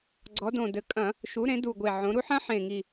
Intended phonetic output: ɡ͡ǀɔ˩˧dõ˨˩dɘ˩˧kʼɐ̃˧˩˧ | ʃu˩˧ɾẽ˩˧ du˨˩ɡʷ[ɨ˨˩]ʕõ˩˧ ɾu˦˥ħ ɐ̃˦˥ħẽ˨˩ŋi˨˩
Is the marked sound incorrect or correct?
incorrect